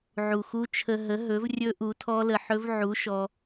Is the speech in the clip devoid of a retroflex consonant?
yes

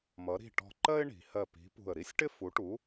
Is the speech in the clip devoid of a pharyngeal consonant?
yes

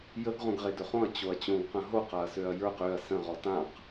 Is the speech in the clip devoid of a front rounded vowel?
no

